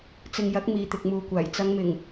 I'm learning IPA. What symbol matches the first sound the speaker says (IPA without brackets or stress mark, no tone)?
t͡s